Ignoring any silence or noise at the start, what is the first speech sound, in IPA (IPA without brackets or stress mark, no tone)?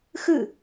x